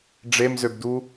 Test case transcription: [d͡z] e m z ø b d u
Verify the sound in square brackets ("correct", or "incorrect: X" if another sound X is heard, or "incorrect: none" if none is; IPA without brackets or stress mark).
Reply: incorrect: ɖ͡ʐ